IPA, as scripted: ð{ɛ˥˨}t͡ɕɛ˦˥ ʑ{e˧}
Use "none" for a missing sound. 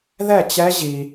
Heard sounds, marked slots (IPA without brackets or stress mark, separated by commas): ɛ˥˨, i˧